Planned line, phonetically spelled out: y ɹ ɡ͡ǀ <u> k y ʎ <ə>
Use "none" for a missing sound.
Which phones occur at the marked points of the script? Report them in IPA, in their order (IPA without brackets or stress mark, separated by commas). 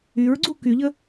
u, ə